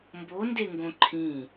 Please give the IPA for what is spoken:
mbondeŋɡõ ǃʰĩ

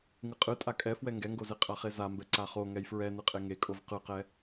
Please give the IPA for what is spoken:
ŋɯqʼɯ tʼakʼɛfwɛ ŋɡɛŋɡoze qʼaχezambɛ ǀaχo ŋɛjfɹɛ nɯqʼeŋekʼov qɯqɛ

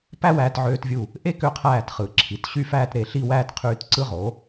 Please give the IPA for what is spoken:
pæ˥wæː˧tʕøː˧tvʲu˧˩ | ʔe˥kø˧qʰæː˧˩t χɯ˩˧ǁʰi˩˧t ɕy˥˧fæː˥˧tɾe˧˩ ɬi˥˧wæː˥tqʰyː˧t ǀɯ˧ʁo˩˧

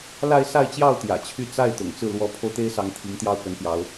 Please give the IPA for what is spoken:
la˥˧ɪ̯ sa˥˧ɪ̯t͡ɕjɑ˥˩ʊ̯ t̪jä̰˨˩t͡ɕʰy˥˧ t͡sa˥˩ɪ̯ t̪ʊ̰˨˩ŋt͡sɹ̩˥˩ lwɔ˧˥pʰo˧ʊ̯t̪e˥ɪ̯sɑ˧˥ŋ t̪ʰi˧˥ŋt̪jɑ˥˩ʊ̯kə˧˥npjɑ˧˥ʊ̯

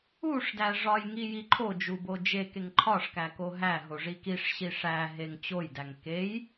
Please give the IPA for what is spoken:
uʂdæ ʐɒjŋi jiǃʰod͡ʒu bod͡ʒekeŋ ǃʰɒʂkæko ɦæɦoʐi kiʂɕi ʂæ ɦeŋt͡ɕojdæŋ kej

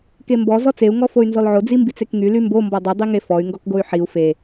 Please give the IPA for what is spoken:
kembɔ zɔt͡seu̯ ŋɔfoy̯nzɔlʕo d͡zimbit͡sekŋy lymbo mbɔdˤy dˤiŋefɔy̯ ŋɡɔkɡoy̯ħiu̯ fe

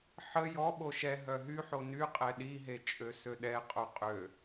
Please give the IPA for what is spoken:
ħə jɔɓo ʃɛ ɦœɦyħo ny qʼɛɗiɦe t͡ʃʼøsøɗɛqʼo qʼø

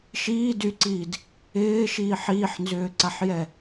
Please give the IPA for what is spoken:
ʃi dyǀiːd | ɪːʃiːħ iːħnzʏːǀaħjɛ

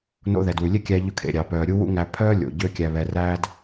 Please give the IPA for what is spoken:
no̰˧ ðɛ˩dwʉ˩lʲe˥kʲæ˧ ʎɵ˧kʰḛ˩ɾʲɑ˩ pœː˩ɾʲu˥wṵ˥ ŋæ˧pʰœː˥lʲo̰˩ ɟø˥kʲæ˧βɛ˧ ræ˥d

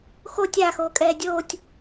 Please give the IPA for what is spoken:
xo tʲaːxoːkʼɛː dʲoːtʲ

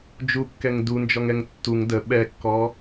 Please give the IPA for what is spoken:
d͡ʒukːɛŋ dund͡ʒɔŋɛŋ tːuŋ də ɓɛkːɔ

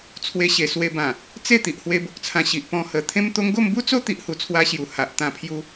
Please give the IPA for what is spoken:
t͡sʰwe˧ɕe˨˩swe˧bã˨˩ | t͡se˥˧ t̪i˨ʔhwe˧bo˨k̚t͡sʰã˧ ɕi˨ʔpɔ̃˧hə˨˩ t̪ʰẽ˦mt̪o˦ŋ ɡo˥˧mbu˦t͡so˦ t̪i˦ʔhu˧t͡sʰwa˦ɕju˨˩ ha˨ʔ t̪ã˧pʰju˧

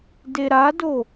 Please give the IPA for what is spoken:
deɾado

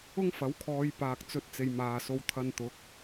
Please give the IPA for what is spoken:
ʊ˥ŋfɐ˨˥wkʰɔː˨˧j paː˨k̚t͡sɵ˨˥t̚t͡se˨j maː˨ so˨˧w t̪ʰɐ˧nt̪ʊ˨˥k̚

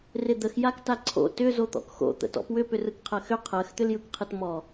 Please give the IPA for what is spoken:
rɪd̪əx jaktaǀʰo̰ tʏ zot̪ɔ̰kxo̰ t̪ə̰tɔ̰pwʏ pʏrɯkqʰɜxʏ qʰɜx t̪ʏljɯkqʰɯtmɔ

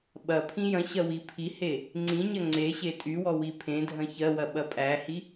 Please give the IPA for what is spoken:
ɓɐ pʰĩjɐ̃ɕɐ wipʰihe | ŋ͡ǀĩɲɐ ŋ͡ǀeɕe tʼywɔ wipʰẽdʱɐ̃ çɜwɐ ɓɐpʼæhi

